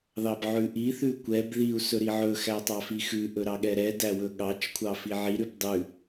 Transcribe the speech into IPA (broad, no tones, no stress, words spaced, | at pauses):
ðɑbʕʉʔi θʉkʷɛb ðiu̯ sɵɾiʕɵ xætˤɑfixʉ ʔɵɾɑɠɛɾɛ dæwɵɠɑt͡ʃ kʷʰɑfiʕi ɾʉbdˤʉ